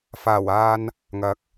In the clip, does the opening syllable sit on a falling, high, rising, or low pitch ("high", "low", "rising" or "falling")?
low